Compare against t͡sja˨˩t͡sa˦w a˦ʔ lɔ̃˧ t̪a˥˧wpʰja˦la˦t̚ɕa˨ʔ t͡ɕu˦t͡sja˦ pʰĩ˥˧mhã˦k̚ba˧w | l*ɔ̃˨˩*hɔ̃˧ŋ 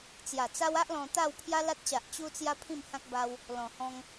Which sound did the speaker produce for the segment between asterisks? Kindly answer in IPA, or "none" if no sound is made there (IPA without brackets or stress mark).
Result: ɔ̃˨˩